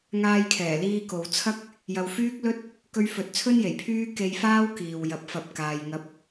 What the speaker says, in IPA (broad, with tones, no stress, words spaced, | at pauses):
ŋaː˧jkʰɛː˨˩liː˧ ko˨wt͡sʰɐ˥k̚ | jɐ˨wfyː˥k̚lɵ˥t̚ | kɵ˧ɥfɵ˨t̚t͡sʰɵ˥nje˨˩j pʰyː˥ ke˧jfaː˥w kiː˨wjɐ˨˥p̚ fɐ˨p̚kaː˨j ŋɐ˧p̚